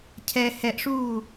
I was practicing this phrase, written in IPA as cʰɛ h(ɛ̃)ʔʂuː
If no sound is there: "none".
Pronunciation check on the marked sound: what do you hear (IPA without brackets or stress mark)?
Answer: ɛ